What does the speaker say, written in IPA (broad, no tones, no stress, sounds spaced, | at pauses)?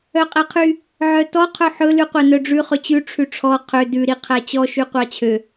œ qʼ ɛ qʰ y | ʕ œ t ɔ qʰ ɵ ħ ɵ l ʉ qʷ æ n œ ɖ͡ʐ ʉ χ ɵ t͡ɕ ʉ ʈ͡ʂʰ ʉ ʈ͡ʂʰ ɔ qʰ ø d ʉ ɾ i qʰ æ t͡ɕ ɔ ʃ y qʷ ɑ t͡ɕʰ ø